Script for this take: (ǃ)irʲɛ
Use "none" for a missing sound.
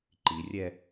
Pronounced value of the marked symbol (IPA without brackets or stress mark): ǃ